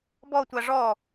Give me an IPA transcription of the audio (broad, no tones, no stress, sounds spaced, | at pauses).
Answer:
b ɔ tʷ a ʐ ɔ